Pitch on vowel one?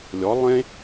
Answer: rising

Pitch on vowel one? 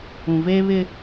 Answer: low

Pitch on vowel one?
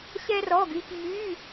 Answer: high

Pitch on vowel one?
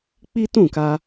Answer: high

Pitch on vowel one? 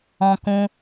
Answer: high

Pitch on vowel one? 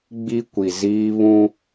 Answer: high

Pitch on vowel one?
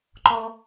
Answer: high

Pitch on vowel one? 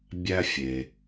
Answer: high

